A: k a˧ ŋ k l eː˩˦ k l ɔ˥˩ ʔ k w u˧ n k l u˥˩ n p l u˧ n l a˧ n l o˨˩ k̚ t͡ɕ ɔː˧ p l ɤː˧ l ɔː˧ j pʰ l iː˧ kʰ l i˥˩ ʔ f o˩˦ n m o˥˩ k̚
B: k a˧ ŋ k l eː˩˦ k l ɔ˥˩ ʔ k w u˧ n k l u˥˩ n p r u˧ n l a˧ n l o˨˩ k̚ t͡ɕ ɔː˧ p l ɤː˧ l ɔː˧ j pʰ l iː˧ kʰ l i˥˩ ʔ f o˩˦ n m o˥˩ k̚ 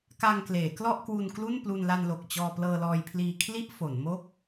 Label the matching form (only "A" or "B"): A